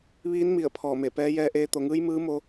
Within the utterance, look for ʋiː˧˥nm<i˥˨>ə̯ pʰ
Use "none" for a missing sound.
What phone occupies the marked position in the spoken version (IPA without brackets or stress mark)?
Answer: i˧˩